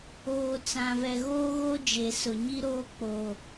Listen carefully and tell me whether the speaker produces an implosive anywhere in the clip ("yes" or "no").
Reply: no